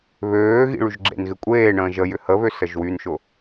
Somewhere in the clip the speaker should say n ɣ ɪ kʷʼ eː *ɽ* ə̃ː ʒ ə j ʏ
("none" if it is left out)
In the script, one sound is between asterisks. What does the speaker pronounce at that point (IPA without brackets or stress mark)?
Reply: ɳ